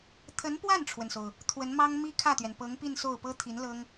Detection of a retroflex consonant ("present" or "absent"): present